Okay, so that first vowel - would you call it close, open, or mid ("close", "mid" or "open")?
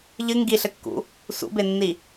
close